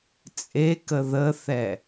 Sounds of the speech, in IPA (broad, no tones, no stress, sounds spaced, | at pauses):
t͡sʼ e k ə ð ə θ ɛ